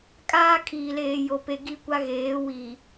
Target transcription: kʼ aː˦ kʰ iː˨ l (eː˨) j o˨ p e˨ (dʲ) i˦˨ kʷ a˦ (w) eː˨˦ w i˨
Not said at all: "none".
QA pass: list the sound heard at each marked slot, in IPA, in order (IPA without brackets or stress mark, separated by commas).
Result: eː˨, ɡ, ɣ